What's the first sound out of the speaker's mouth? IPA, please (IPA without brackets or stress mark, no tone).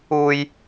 uː